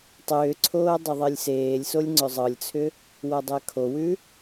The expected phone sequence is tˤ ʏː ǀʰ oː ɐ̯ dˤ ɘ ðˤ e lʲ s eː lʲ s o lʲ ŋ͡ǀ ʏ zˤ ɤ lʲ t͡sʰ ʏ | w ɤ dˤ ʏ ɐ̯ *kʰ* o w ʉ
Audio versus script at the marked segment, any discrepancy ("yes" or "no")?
no